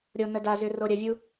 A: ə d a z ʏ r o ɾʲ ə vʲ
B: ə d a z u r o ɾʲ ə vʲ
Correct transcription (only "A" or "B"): A